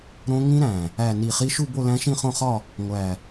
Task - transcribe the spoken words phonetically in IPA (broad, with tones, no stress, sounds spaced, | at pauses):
ɾ õ˦˥ ŋ ĩ˦˥ ɾ æ̃˨˩ | æ˥˧ n i˥˧ χ i˦˥ ʃ u˥˧ b o˥˧ l æ̃˦˥ ʃ ĩ˥˧ χ õ˥˧ χ ɒ˥˧ | ŋʷ æ˨˩